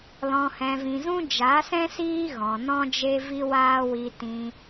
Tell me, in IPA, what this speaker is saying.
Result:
l ɔ̃˨ h ɛ̃˨ v ĩ˨ z ũ˦ d͡ʒ a˨˦ s ɛ̃˦ s iː˦ ɣ ɔ̃˨ n ɔ̃˦ d͡ʒ e˦ v i˦ w aː˦ w i˧ t ĩ˧

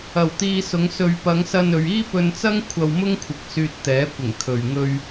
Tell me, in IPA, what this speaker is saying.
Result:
ɐ˨˩ w t̪ iː˧ s ʊ˨˧ ŋ s ɵ˧ ɥ p ɐ˨˧ ŋ s ɐ˧ n ɵ˨ ɥ iː˥ p ɵ˧ n t͡s ɐ˥ ŋ kʷʰ ɐ˧ w m ʊ˥ ŋ kʷʰ ɪ˨ k̚ s yː˧ t̚ t̪ ɛː˨˥ kʷ ɪ˨˩ ŋ kʰ ɵ˨ ɥ ŋ ɵ˧ ɥ

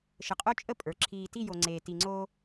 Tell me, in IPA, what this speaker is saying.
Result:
ʃ ə˨ qʼ o˦ t͡ʃʼ ə˦ pʼ ə˞˨ ǁʰ iː˨ t i˦˨ j o˨ ŋ͡ǀ eː˨ t i˨ ŋ͡ǀ oː˦

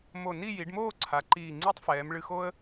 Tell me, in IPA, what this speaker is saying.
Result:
m o˧˩ n i˥˧ j i˩˧ ɖ m oː˥˧ ǀʰ a˩˧ ǃ iː˧˩ ŋ͡ǀ i˥ tˤ f ɛː˩˧ m ɭ ɨ˧ x o˥ ə̯

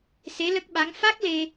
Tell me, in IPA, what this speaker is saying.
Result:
s e˧˥ l ə˦˥ k̚ ɓ a˧˥ ŋ f a˦˥ k̚ l e˧

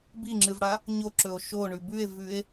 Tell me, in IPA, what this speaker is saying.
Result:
b i ŋ͡ǁ ɨ v ɽ a | ɲ o ǁ ɵ o̯ ʃ o ɳ ʉ b ʉ e̯ v ʉ e̯

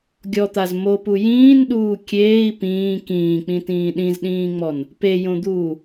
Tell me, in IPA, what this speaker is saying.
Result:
ɡʲ ɔ t̪ a z m o p u j ĩː n ɗ uː kʲ eː i̯ p ĩː k ĩː k͡p ĩ t ĩː ɗ ĩ z ɗ ĩː ŋ͡m ɔ n | p e j õ d̪ uː

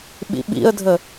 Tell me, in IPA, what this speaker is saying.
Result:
ɓ ḭ ɓ ḭ ə̯ dʱ ə

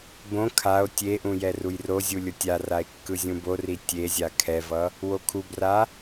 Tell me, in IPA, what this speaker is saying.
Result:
b õ kʰ a o̯ tʲ e ʔ ũ j ɛ r u j r o zʲ u lʲ o tʲ a r a e̯ kː ɯ zʲ ũ b o r i tʲ e zʲ a kʰ ɛ v ʌ | w o kʰ u b r a

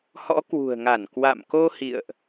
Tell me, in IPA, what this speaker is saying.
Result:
h ɔ̰˧˥ k w ṳ˨˩ ə̯ ŋ a˧˩ n k w a̰˧˨ m k o˧ h ḭ˧˨ ə̯ ʔ

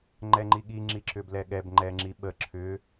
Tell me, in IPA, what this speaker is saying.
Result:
ŋ͡ǃ ɛ ŋ͡ǃ i ɠ i ŋ͡ǁ i ǁ ʏ b l ɛ ɠ ɛ b ŋ͡ǃ ɛ ŋ͡ǁ i ɓ ə ǁʰ ʏ

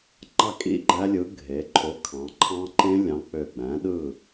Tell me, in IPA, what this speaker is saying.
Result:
ŋ͡ǃ ɑ˥˨ kʼ ḭ˥˨ ɡ͡ǃ æ˦˥ lʲ ɯ˨˥ ɡʱ e˩˧ ǃʰ o˨˥ kʰ ɑ̃˩˧ ǃʰ ɑ̃˦˥ ǃ ẽ˦˥ lʲ ɑ̃˨˥ k͡p ø˧˩ ɡ͡b æ̃˨˥ ɗ ɯ˥˨

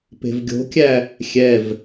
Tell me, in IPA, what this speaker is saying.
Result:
p e̤ v ɡʲ o̤ kʲ æ | xʲ ɛ v

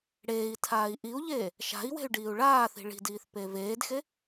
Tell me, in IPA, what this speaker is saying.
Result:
ɽ eː i̯ tʰ aː i̯ ʔ i u̯ ʎ eː | ʃ a̤ i̯ w e̤ y̯ ɖ iː u̯ ɭ aː θ i̤ ɭ i̤ d iː θ p e v eː d x e

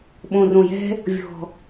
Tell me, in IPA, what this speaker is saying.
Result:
ɓ õ˨˩ r õ˨˩ j ɛ̤˦ | vʲ ɔ̤˨˩

